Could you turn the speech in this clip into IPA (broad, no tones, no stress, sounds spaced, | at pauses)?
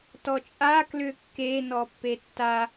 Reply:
t ɔ t͡ʃʼ a k l ʏ kː e n ɔ pː e tː a